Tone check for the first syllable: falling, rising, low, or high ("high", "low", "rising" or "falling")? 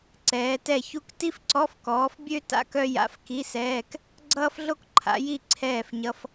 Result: rising